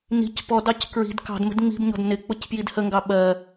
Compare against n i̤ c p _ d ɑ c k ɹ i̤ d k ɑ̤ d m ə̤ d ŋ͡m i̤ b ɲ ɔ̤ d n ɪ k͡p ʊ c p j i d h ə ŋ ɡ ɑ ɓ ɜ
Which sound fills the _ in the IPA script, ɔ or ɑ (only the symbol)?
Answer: ɔ